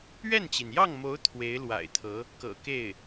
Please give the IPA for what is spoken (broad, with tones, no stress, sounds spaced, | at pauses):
ɥ ɛ˥˩ n t͡ɕ i˩ n j ɑ˥˩ ŋ m o˧˥ ʊ̯ t̪ʰ w e˧˥ ɪ̯ l w a̰˨˩ ɪ̯ t̪ʰ ɤ˧˥ | k ɤ̰˨˩ k e˥˩ ɪ̯